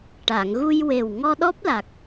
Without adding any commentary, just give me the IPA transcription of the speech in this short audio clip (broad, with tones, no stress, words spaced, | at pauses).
ʈa˨˩˨ŋɣu˧jwe˨˩w ŋɔ˧ɗɔ˦˥p̚la˨˩k̚